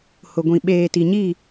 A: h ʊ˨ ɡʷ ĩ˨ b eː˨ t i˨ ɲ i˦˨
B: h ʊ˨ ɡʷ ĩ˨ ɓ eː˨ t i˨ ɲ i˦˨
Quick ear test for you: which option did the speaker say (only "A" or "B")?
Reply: B